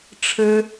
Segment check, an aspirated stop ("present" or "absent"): present